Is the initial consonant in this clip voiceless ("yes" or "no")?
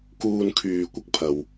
yes